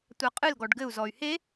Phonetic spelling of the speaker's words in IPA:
tʷ a qʼ ɨ l ɡ ɔ ɖ ɡ ɘ u̯ z ɔ y̯ h e

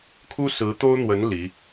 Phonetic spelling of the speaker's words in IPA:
kʰ u˥ s ɹ̩˧˥ t̪ o˥ ʊ̯ n̪ w ə˧˥ n l i˧˥

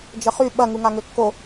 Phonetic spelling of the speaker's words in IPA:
d͡ʒ ə χ y ɓ ɐ ŋ u ŋ a ŋ ø kː o

